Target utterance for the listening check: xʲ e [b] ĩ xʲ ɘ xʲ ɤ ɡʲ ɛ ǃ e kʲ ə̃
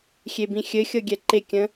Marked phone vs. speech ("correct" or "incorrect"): correct